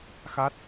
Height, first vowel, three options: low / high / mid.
low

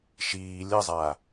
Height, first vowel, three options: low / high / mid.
high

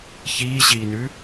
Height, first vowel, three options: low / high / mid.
high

